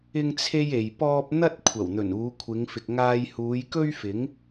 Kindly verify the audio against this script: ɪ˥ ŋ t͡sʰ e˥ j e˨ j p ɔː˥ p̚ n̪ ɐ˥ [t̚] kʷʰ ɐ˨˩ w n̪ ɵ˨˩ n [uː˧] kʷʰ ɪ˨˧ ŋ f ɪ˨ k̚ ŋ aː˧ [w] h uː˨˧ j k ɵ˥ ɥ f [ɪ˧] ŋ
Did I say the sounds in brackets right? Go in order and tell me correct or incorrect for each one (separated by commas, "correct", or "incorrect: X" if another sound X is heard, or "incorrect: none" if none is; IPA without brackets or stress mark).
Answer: correct, incorrect: uː˨˧, incorrect: j, incorrect: ɪ˨˥